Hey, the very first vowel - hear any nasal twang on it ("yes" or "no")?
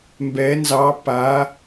no